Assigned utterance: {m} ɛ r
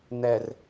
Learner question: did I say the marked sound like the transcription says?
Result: no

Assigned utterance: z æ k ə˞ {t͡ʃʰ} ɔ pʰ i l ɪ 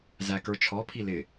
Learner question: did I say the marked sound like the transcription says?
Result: yes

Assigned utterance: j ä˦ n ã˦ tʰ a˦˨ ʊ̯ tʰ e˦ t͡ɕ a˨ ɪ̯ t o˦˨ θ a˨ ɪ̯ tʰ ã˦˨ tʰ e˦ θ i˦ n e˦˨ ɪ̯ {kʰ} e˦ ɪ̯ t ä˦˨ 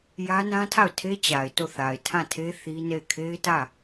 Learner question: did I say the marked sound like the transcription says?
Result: yes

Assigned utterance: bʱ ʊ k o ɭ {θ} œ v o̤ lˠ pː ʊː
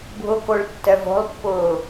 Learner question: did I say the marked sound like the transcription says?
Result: no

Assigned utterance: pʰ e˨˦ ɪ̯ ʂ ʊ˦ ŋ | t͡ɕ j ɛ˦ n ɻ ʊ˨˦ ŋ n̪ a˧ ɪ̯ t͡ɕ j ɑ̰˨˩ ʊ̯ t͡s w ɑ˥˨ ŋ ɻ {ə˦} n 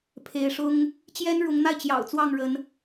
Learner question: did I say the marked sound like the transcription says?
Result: no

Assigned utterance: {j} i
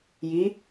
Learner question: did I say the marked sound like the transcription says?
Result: yes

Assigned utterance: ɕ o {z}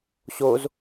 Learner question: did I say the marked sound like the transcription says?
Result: yes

